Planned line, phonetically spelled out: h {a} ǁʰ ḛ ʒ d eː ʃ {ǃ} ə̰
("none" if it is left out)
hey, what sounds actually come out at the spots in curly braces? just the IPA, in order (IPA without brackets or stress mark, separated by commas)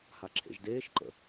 a, ǃ